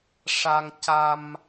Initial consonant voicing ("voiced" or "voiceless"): voiceless